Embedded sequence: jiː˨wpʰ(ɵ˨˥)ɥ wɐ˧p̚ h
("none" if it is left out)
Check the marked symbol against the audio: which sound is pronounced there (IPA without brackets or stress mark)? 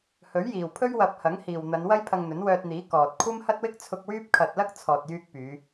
ɵ˥